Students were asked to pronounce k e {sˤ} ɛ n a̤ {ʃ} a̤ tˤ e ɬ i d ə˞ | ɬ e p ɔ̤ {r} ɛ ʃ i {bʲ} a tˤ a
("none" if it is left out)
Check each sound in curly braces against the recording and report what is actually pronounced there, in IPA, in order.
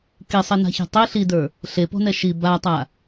sˤ, ç, n, b

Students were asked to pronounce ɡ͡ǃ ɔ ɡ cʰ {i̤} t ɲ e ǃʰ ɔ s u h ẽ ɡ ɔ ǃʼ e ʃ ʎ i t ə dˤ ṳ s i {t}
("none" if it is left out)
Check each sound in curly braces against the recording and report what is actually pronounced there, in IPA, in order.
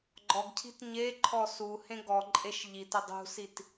i̤, t

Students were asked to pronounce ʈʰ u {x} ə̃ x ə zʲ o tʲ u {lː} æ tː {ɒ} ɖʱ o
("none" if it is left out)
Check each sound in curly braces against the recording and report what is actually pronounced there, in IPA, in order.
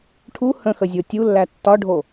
h, lː, ɒ

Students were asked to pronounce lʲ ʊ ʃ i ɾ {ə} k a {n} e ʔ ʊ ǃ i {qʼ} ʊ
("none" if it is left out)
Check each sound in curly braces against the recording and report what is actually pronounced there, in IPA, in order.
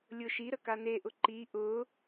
ə, n, ʔ

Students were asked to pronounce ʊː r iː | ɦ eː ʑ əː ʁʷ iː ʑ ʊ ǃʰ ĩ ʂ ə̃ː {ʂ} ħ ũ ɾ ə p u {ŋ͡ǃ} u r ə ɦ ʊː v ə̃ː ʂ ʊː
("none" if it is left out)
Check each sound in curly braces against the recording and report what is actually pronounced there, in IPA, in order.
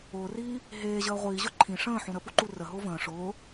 none, ǃ

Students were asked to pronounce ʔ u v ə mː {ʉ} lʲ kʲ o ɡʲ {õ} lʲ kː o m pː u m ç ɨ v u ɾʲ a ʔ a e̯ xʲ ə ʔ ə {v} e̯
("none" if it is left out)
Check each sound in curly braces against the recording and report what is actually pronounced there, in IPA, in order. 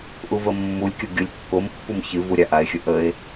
u, o, none

